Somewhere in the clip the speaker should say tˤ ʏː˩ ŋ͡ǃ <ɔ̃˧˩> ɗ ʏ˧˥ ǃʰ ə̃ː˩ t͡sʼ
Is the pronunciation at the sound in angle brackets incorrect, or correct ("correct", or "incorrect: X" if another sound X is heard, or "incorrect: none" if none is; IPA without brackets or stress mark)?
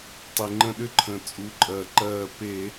incorrect: ə̃˧˩